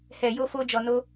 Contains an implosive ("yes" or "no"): no